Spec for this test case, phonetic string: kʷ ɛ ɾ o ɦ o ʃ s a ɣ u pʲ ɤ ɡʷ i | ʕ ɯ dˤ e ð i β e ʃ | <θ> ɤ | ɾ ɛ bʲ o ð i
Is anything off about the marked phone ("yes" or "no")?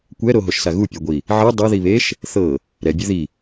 no